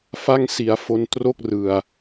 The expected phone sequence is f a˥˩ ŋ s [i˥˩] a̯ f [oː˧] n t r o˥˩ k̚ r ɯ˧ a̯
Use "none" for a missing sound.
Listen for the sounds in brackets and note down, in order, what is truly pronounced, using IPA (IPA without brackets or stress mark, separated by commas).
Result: i˧, o˧